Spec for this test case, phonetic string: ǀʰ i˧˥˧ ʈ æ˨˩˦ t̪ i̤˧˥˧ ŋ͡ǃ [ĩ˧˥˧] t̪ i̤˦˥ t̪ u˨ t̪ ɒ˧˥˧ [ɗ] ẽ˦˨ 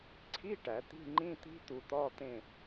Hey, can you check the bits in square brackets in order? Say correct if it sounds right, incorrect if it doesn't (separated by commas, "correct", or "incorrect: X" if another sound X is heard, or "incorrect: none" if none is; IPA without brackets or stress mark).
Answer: correct, incorrect: t̪